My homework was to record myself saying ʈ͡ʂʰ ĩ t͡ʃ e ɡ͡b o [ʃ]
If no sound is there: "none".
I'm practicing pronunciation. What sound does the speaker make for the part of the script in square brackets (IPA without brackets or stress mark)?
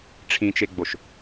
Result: ʃ